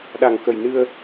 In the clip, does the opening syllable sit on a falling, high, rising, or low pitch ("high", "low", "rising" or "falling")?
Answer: low